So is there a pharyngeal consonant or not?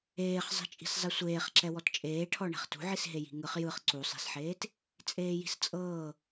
yes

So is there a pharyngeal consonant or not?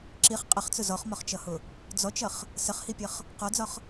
no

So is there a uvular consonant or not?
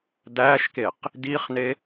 yes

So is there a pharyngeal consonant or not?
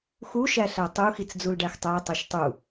no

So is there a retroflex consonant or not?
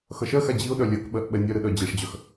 yes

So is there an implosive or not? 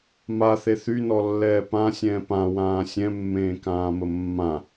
no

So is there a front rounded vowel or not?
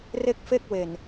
no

